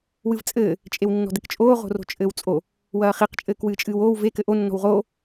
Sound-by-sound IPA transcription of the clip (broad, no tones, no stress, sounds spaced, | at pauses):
w ɨ v t͡sʼ ɘː | t͡ʃʼ e w nː ɔ̤ d ɘ k t͡ʃʼ oː ʁ o̤ r o̤ t͡ʃʼ ɘː w t͡sʼ o | w ɐː χ i q t͡ʃʼ ɘː k w ɨː t͡ʃʼ ɨː w oː w v e k ɘ ʔ o nː ɔ̤ w ʁ oː